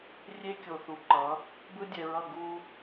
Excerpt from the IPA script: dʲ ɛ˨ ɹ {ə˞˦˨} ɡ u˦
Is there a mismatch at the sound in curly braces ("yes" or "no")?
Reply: yes